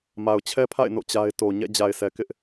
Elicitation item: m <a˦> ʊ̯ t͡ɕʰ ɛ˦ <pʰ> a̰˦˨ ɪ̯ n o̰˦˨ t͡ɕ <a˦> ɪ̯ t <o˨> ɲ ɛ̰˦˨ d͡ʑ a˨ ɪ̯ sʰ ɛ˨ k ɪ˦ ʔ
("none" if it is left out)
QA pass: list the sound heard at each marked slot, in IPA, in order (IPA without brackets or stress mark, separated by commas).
a˨, pʰ, a˦, o˨